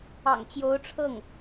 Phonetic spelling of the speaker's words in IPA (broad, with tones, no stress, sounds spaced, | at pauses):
ɑ̰˨˩ ŋ t͡ɕ j o˧˥ ʊ̯ ʈ͡ʂʰ ɤ˥˩ ŋ